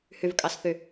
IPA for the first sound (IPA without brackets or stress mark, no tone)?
h